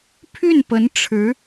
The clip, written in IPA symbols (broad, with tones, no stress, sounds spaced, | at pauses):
pʰ y˥˩ n p ə˧˥ n ʈ͡ʂʰ ɻ̩˧˥